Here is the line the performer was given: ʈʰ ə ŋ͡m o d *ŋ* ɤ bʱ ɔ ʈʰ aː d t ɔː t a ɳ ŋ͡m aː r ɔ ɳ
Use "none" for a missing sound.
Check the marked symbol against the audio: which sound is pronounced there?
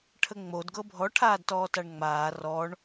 ɡ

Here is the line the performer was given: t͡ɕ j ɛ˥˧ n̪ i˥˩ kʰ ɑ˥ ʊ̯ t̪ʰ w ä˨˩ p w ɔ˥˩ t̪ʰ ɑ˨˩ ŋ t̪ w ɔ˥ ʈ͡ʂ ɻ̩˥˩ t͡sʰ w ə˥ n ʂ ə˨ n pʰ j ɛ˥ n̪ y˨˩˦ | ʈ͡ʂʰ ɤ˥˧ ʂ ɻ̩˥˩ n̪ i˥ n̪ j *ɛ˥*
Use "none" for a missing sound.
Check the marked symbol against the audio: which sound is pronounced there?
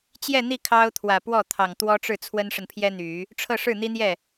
ɛ˥˩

